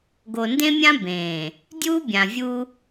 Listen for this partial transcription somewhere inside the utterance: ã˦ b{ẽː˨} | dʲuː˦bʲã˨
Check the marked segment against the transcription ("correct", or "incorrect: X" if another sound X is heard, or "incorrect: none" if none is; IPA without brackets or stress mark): correct